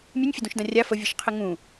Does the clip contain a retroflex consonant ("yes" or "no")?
no